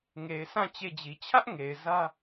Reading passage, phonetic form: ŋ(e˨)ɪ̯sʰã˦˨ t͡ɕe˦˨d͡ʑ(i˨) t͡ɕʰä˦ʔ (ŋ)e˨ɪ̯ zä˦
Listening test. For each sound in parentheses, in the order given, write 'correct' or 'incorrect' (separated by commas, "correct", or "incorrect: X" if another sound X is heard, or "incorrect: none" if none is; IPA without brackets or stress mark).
correct, correct, correct